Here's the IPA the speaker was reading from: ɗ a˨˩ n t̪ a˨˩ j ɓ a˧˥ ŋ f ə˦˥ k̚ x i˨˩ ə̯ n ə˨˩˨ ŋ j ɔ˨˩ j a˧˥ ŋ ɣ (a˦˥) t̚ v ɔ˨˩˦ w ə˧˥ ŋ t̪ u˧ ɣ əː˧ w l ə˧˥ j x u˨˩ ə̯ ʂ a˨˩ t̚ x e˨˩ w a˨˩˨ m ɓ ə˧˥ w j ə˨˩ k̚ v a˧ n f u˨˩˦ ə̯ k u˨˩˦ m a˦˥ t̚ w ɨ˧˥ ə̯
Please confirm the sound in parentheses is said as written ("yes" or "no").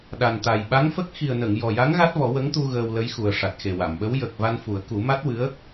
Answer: yes